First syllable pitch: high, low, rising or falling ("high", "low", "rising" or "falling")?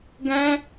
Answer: high